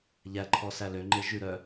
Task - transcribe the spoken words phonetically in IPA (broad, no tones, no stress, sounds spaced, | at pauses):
ʎ æ ǃʰ ɔ s æ l ø ŋ͡ǃ e ʒ ʉ ɾ œ